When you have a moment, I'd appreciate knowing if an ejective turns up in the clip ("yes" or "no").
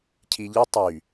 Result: no